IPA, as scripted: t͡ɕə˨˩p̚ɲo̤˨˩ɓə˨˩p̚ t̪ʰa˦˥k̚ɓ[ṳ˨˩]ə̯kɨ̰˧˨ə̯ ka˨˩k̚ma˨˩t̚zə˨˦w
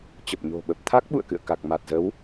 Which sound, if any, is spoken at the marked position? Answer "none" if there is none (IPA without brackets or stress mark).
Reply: ṵ˧˨